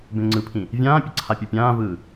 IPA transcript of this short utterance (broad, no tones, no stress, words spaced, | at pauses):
bẽŋ͡ǀɯpʰĩ | vʲãːpʲʌ ǀʰapʲupʲãːvɯː